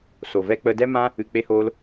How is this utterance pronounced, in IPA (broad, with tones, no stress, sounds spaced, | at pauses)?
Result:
s o˨ v ɛ˦ k͡p ə˦ d ɛ˦ m ã˦ | ɨ˨ k͡p e˧ h oː˧ l